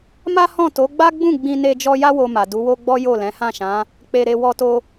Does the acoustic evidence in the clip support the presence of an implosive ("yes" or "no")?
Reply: no